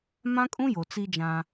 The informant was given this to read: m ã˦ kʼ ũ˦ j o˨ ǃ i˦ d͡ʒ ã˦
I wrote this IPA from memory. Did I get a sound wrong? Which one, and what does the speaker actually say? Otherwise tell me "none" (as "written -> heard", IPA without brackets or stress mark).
ǃ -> t͡s